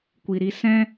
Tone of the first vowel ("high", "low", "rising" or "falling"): low